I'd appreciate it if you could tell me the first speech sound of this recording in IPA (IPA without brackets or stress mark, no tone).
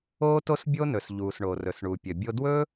oː